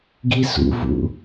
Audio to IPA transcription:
ɡ i s ṵ v ṵ

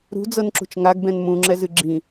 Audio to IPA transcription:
ɾ ṳ d͡z ɤ n ǁ ṳ t͡ʃ ŋ a ɡ b ɛ̃ n m ũ ŋ͡ǁ ɛ z ɨ ɡ͡ǁ ĩ

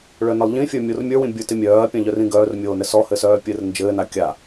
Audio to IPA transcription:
ɭ œ n ɘ lˠ ʎ ĩ fʲ ə˞ mʲ o r mʲ ə˞ w ĩ bʲ ə˞ t ɪ mʲ œː ɐ̯ pʲ ã ʎ œ r ĩ ɡ œː r mʲ oː n ɘ s ɔ h ɘ s œː pʲ ɘ r n d͡ʒ ɘː n a kʲ a

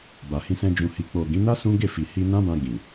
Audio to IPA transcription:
b a˨ h ĩ˧ s ɛ̃˧ d͡ʒ ũ˨ h i˨ k͡p o˨ ɡ ĩ˨˦ n a˦ s ũ˦ ɡ e˦˨ f i˨ h i˧ n ã˦ b ã˧ ɡ ĩ˨

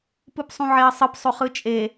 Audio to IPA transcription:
p ɯ p sˤ ũ ʕ e ɐ̯ sˤ ɯ p sˤ o χ ɯ t͡ʃʼ e

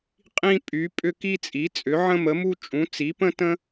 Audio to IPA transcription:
qʼ ĩ˥ pʼ y˨˥ pʼ ʏ˥ k i˥ t͡sʼ i˨˥ t͡sʼ ʏ˨˥ ʕ ə̃˥ m ə˨˥ m u˥ t͡ʃʼ ũ˨˥ t͡s i˨˥ p ə̃˥ t ə̃˥

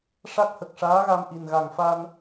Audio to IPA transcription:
ʂ a˦˥ k̚ h ə˨˩ k̚ ʂ aː˧˥ ɣ a˧ m ʔ i˨˩ n ɣ a˨˩ ŋ f a˧ n

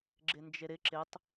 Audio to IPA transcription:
ɡ͡ǁ ɪ n d͡ʒ e ɾ ɪ ǁ ɪ tˤ

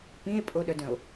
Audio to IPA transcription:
p ĩ e̯ pʼ o ɗ œ d œ̃ o̯

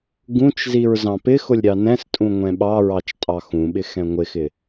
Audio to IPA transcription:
ɡ ũ t͡ʃ z i ɹ z ɑ̃ p ɪ x ʊ lʲ ɾʲ ɑ n ɛ̃ s tʼ ũ ŋʷ ɛ̃ ɓ ɑ ɹ ɑ t͡ʃ tʼ ɑ x ũ ɓ ɪ x ɛ̃ ŋʷ ɪ x ɪ

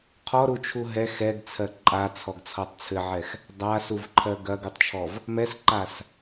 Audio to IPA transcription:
qʰ ɔ ɾ u t͡ʃʰ u ɦ ɛ x ɛ ɡ t͡sʰ ɜ ǃʼ a t͡sʰ ɔ ɡ t͡sʰ ɔ tˤ t͡sʰ ɘ ʕ ɛ x | dˤ a s u v ǃʰ ɜ ɡ ɐ ɡ u tˤ t͡ʃʰ ɔ v | m ɛ s ǃ a s

